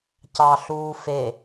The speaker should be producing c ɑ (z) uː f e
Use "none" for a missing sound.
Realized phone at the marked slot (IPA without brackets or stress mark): ɬ